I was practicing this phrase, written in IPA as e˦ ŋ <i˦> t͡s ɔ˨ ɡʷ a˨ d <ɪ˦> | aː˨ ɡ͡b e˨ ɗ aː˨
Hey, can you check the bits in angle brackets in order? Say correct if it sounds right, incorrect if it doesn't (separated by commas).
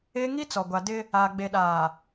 correct, correct